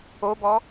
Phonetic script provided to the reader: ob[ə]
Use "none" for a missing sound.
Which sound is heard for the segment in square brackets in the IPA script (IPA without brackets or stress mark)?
ɔ